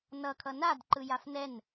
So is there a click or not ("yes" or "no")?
yes